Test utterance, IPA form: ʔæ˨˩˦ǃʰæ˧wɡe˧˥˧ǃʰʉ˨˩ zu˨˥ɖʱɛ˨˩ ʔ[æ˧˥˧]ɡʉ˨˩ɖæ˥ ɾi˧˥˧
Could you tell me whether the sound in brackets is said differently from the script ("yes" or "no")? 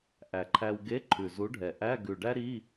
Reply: no